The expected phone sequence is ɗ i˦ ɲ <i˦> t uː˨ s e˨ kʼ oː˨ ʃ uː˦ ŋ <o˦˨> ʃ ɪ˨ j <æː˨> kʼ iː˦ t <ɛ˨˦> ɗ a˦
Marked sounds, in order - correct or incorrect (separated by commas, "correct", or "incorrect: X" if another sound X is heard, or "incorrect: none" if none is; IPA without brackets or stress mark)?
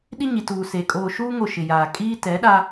incorrect: i˨, correct, incorrect: aː˨, correct